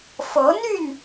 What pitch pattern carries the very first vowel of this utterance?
rising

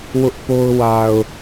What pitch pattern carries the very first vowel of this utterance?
high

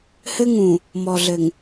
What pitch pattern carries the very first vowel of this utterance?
high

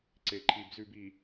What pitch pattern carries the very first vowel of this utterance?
low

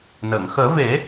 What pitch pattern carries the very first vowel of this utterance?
low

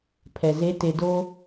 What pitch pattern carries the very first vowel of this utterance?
low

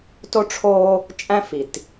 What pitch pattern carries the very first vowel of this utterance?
high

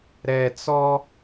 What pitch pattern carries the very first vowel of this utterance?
low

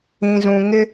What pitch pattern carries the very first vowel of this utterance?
low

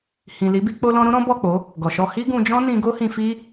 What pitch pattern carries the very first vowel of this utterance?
low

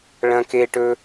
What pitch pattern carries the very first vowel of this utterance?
high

